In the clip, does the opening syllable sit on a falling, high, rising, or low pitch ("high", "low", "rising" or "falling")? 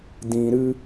low